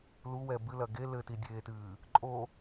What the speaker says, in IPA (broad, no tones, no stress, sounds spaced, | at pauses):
l u w ɛ b ɨ l ɐ ɡ e l ɘ t i dʲ eː t ɨː | ǃʼ o